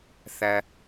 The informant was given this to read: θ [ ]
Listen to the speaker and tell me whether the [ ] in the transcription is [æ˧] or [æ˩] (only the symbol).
æ˧